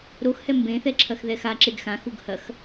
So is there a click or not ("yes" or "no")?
yes